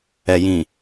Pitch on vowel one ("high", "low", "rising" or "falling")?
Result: low